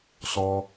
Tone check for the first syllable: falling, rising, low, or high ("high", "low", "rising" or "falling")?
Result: high